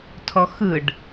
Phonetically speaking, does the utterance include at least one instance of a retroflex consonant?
yes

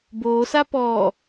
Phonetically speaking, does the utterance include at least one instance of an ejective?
no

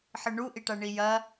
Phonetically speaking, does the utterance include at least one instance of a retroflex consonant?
yes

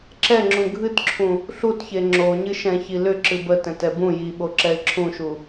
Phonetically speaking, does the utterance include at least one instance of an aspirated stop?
yes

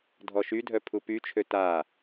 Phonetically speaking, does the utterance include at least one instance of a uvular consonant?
no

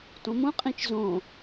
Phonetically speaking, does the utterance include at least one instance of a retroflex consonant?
no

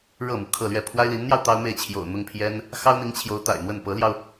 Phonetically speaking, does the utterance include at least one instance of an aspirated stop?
yes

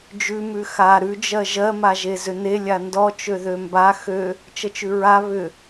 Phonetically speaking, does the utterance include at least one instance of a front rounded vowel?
yes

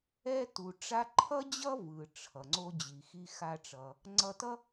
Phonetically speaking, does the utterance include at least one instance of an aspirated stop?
yes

